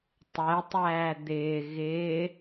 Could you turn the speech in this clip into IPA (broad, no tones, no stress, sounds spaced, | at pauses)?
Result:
tˤ ɛ tˤ æː d̪ ɪː ɣ ɪː